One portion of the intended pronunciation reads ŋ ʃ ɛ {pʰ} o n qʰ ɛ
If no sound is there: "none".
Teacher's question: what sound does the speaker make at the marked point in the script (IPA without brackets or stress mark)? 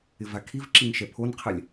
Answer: pʰ